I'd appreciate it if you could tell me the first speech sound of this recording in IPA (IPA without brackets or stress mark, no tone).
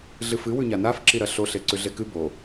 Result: ɮ